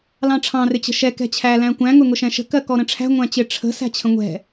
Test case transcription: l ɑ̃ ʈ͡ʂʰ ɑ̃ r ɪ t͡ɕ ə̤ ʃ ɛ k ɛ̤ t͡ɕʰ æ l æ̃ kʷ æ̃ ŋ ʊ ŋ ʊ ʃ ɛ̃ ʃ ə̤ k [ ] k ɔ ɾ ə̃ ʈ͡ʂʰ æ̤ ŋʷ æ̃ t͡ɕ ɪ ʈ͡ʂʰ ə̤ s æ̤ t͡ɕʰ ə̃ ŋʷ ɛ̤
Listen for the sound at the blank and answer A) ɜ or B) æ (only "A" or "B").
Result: A